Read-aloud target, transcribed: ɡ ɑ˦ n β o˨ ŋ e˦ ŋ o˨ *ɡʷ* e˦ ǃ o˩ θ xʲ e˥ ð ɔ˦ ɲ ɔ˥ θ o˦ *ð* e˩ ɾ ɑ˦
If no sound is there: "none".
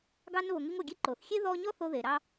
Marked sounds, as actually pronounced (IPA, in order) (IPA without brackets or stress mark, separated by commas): ɡʲ, ð